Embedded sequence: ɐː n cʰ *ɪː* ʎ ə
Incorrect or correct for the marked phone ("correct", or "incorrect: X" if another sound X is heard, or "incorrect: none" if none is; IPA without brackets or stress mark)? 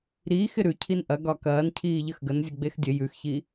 incorrect: iː